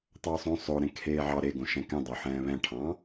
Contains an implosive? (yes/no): no